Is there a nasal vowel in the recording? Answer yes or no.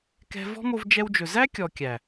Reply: no